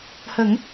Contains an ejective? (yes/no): no